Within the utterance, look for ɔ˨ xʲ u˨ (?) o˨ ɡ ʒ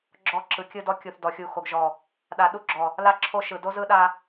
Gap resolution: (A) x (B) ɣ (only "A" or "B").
A